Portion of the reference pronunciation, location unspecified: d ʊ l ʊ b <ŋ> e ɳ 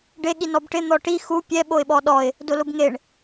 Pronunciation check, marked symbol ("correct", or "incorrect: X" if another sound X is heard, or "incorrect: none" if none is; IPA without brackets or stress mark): correct